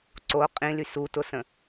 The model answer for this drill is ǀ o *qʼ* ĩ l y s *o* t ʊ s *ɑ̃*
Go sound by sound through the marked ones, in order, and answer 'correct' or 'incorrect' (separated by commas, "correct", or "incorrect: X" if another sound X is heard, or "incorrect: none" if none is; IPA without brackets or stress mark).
correct, incorrect: u, incorrect: ə̃